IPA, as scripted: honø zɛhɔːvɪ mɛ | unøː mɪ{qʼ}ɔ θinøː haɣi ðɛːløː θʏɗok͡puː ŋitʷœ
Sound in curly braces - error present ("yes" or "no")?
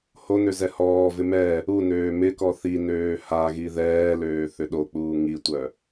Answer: yes